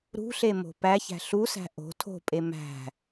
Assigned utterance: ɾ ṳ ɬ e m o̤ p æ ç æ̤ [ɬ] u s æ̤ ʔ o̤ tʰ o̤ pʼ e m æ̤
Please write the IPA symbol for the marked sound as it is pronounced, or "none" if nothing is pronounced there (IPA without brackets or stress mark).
ɬ